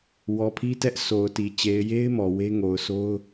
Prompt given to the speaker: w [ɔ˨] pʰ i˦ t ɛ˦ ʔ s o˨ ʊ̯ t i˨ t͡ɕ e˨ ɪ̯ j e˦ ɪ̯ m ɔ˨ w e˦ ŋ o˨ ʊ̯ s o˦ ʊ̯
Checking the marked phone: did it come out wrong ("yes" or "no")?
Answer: no